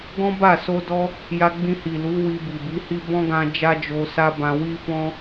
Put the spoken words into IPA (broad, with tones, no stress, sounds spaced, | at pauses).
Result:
ɡ ɔ̃˦ b a˦˨ s o˧ d ɔ˧ | j a˧ ɡ͡b ĩ˧ h i˨ l u˨˦ w i˧ b i˨ b i˨˦ h i˦ b ɔ̃˦ ɡ ã˧ d͡ʒ a˦ d͡ʒ o˧ s a˦ b ã˧ w i˦ f ɔ̃˦